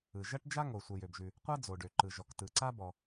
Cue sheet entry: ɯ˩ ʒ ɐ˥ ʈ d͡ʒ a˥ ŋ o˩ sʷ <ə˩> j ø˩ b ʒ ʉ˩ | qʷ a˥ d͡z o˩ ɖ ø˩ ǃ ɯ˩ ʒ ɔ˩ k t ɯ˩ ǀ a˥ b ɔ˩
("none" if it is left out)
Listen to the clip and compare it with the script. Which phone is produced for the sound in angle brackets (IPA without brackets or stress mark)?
ə˩